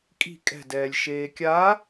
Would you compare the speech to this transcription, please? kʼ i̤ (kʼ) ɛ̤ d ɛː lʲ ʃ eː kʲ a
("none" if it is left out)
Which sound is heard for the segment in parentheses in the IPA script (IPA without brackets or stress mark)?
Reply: kʼ